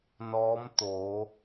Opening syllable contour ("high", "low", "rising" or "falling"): rising